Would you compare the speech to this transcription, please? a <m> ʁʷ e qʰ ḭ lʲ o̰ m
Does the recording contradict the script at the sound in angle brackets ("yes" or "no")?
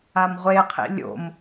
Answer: no